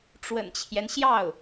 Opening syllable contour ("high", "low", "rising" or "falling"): low